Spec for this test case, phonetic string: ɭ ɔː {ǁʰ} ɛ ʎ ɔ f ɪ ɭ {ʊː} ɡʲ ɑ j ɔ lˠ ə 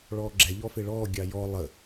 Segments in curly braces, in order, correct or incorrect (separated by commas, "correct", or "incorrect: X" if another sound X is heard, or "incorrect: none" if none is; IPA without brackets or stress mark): incorrect: ɡ͡ǁ, incorrect: ɔː